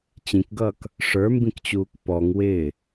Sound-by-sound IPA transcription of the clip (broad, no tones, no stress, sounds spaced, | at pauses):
t͡ɕ ĩ k ɡ ʌː k | ʂ ə˞ m b ĩ k t͡ɕ uː k p ɔ ŋ w ɪː